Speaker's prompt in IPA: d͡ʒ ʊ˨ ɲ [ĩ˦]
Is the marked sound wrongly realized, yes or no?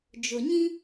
no